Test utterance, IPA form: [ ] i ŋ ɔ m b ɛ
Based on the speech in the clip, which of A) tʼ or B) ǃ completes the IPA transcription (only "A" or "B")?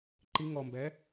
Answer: B